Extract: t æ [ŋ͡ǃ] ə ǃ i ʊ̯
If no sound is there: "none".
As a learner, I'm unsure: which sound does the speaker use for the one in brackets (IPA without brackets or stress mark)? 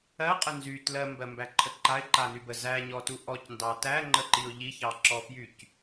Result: ŋ͡ǃ